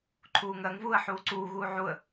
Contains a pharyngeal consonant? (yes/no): yes